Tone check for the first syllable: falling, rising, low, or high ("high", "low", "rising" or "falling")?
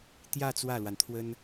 falling